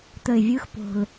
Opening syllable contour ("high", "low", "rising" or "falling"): low